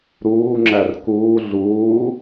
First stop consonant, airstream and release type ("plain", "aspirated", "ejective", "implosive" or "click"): click